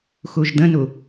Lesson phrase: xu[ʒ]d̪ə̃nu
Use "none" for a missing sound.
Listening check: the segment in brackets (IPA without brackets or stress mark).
ʒ